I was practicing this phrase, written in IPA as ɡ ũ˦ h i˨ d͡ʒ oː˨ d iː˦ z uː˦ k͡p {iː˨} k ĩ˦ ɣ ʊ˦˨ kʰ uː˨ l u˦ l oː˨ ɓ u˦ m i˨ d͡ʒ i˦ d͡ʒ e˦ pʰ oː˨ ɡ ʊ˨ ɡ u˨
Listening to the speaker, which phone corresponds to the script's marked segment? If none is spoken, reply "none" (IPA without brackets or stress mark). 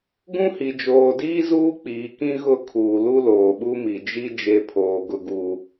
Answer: iː˨